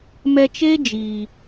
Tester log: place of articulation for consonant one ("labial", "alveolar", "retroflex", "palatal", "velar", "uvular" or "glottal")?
labial